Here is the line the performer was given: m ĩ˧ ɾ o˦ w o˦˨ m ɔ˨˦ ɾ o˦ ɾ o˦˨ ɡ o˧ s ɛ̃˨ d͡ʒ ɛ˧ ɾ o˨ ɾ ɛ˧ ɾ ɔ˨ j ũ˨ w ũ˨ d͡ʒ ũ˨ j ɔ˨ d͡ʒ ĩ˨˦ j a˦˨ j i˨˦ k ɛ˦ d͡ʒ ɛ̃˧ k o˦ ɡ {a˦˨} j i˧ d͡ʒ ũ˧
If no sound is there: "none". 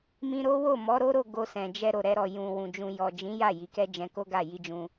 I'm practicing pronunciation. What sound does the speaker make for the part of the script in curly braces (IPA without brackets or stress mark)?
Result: a˦˨